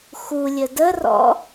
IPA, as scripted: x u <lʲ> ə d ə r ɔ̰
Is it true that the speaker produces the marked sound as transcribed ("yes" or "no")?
yes